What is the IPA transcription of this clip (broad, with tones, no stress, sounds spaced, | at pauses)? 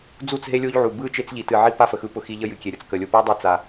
d͡z u˦˨ t͡s ɦ e˦ lʲ o˦ ʎ ʕ u˨ b ɯ˦˨ t͡ʃ e˦ t͡s ʎ i˨ t ɨ˨ ʕ i˦ p a˦ f ə˨ x ɯ˦ p ʊ˦ x i˦ ʎ ə˦ j ɨ˨ kʲ e˨ ɾʲ ə˨ t͡s k ə˨ lʲ ʊ˨ p a˦ dˤ e˦ t͡s a˨